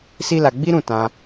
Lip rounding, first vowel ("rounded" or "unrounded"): unrounded